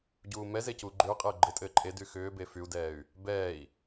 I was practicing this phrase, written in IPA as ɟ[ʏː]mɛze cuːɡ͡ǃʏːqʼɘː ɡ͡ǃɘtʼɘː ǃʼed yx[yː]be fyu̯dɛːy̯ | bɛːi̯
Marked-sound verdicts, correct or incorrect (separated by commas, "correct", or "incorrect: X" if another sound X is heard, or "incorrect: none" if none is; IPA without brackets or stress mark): incorrect: uː, incorrect: ʏː